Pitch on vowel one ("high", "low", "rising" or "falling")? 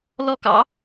falling